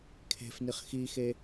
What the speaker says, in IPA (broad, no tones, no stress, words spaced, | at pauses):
kʰe̤fniχ xixe